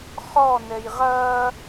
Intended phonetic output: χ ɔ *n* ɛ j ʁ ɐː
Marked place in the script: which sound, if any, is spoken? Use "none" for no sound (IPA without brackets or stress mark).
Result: n